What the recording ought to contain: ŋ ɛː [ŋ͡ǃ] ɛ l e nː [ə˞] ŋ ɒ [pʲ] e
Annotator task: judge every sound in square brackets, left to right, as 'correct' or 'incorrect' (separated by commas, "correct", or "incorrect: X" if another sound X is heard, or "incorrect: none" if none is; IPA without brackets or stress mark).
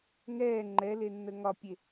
correct, incorrect: ə, correct